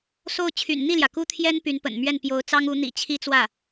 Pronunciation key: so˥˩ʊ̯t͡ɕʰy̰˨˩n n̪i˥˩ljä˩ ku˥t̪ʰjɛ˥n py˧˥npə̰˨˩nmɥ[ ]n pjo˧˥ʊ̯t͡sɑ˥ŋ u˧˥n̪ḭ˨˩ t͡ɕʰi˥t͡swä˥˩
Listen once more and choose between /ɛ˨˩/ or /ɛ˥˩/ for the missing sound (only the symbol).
ɛ˥˩